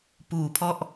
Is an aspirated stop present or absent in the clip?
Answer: present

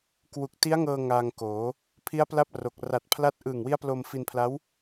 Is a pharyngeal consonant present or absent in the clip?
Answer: absent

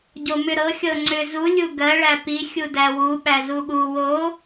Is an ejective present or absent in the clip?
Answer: absent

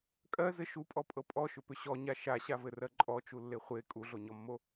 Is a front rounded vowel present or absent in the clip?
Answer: present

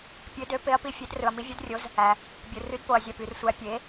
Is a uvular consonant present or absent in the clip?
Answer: absent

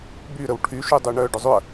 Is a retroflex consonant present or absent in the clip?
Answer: present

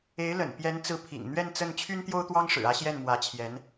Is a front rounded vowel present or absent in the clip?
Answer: present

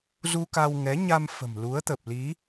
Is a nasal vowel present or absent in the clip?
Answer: absent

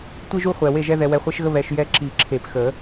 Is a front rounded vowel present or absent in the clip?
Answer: absent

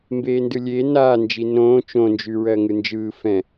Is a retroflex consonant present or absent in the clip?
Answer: absent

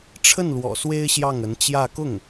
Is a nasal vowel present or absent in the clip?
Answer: absent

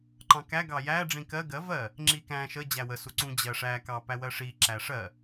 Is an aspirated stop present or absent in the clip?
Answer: absent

